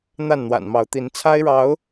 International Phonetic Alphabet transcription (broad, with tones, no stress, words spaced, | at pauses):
n̪a˥˨nn̪wa̰˨˩nmɑ˨˦ʊ̯t̪i˨˦n t͡sʰa˦ɪ̯ɻɑ˨˦ʊ̯